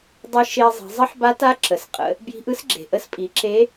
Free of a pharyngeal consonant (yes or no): no